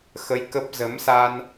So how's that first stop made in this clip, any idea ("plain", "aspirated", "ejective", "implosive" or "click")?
plain